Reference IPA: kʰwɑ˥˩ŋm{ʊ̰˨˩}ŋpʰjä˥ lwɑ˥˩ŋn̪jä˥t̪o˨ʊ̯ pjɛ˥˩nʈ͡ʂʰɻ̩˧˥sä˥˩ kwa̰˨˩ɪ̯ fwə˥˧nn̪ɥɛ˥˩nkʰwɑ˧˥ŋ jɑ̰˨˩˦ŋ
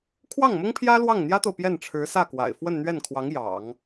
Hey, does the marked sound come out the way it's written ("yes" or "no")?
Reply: no